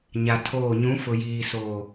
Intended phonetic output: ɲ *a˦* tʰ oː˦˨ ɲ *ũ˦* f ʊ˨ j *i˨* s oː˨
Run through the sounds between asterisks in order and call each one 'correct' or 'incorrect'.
incorrect: a˨, incorrect: ũ˨˦, incorrect: iː˨

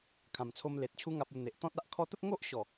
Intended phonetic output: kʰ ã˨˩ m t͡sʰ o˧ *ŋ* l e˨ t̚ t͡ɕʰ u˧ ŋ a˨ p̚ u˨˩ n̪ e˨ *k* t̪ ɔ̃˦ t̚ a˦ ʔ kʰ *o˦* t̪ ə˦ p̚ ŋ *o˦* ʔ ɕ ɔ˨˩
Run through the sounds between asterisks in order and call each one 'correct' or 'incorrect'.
incorrect: m, incorrect: ʔ, incorrect: ɔ˦, correct

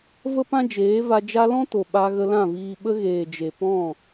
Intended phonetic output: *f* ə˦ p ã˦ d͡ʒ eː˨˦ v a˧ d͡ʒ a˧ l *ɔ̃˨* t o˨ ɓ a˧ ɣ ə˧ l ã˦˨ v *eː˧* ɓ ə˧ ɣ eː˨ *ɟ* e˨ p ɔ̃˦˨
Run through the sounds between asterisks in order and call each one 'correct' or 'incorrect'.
incorrect: v, incorrect: ɔ̃˦, incorrect: iː˧, incorrect: d͡ʒ

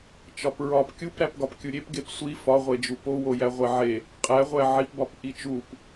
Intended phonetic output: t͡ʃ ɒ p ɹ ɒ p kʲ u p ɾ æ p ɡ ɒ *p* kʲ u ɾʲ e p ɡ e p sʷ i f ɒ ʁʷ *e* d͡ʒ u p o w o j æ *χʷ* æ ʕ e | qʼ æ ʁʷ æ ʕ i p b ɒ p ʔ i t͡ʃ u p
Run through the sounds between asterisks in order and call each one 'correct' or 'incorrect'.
correct, correct, incorrect: ʁʷ

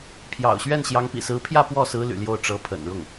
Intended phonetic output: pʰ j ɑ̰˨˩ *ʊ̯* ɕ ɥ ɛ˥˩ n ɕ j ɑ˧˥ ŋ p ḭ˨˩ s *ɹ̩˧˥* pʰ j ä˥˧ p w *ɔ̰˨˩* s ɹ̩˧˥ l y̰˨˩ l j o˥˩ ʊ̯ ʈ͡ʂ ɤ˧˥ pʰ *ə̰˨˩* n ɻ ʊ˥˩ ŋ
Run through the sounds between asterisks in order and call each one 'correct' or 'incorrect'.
correct, correct, incorrect: ɔ˥˩, correct

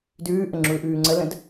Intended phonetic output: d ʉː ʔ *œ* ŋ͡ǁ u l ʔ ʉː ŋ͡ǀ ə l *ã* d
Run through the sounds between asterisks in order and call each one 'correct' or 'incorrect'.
incorrect: ə, incorrect: ə̃

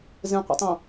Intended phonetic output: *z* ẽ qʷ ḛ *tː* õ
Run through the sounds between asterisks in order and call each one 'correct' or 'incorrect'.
correct, incorrect: tˤ

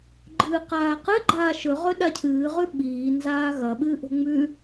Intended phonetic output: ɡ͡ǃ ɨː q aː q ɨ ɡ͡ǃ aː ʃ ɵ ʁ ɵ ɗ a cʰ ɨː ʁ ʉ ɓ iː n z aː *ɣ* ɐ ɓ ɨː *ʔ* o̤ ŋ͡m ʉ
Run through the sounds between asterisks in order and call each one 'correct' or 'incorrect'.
correct, correct

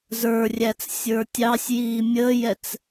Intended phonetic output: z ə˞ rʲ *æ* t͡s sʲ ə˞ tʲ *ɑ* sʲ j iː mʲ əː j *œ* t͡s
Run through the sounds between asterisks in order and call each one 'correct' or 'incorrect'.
correct, correct, incorrect: ɛ

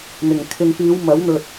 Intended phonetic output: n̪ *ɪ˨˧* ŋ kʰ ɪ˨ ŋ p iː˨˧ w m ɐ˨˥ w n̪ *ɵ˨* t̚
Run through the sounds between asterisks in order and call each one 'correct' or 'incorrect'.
incorrect: ɪ˨˩, correct

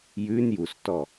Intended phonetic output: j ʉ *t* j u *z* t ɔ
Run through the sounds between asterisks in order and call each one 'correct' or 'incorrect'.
incorrect: n, incorrect: s

